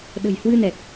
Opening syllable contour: low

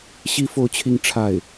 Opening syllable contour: high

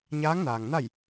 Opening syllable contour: rising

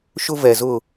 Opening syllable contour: high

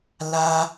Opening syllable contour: high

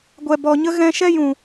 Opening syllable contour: low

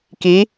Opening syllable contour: rising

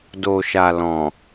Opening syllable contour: low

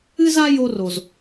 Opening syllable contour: high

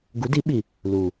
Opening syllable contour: rising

